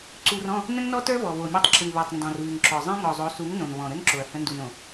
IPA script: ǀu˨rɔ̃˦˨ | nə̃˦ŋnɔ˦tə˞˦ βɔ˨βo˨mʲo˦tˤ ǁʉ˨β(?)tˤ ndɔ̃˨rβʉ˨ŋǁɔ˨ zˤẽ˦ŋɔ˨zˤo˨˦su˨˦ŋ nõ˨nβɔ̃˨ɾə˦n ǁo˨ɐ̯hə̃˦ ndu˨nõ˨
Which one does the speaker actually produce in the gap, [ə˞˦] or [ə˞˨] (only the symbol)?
ə˞˨